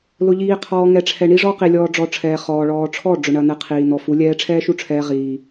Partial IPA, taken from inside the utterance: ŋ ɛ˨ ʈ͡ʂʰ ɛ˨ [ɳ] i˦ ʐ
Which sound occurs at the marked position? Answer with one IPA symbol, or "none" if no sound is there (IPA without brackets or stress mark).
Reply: ɳ